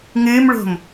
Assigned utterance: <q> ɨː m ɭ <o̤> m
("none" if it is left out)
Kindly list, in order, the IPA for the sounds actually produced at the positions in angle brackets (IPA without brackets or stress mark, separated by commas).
ŋ, o̤